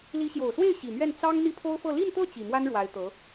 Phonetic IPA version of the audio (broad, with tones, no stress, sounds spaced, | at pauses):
l i˧˥ ɕ j o˨˩ ʊ̯ s w e˥˩ ɪ̯ ɕ i˨˩ m ɥ ɛ˥˩ n t͡s ɑ˥ ŋ n̪ i˥˩ pʰ o˥ ʊ̯ f ɤ˥˧ l i˥˧ n t̪ ɤ˥˩ t͡ɕ i˨˩ m w a˥ n ɻ w a˧˥ ɪ̯ t̪ ɤ˧˥